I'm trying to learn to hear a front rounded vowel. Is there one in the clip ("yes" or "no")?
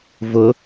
no